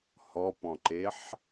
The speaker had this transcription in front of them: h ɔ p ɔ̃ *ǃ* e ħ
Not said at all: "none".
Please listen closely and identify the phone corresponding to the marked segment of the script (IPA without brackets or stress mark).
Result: ǃ